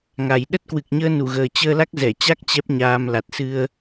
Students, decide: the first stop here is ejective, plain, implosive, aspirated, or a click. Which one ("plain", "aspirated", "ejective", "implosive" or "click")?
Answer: implosive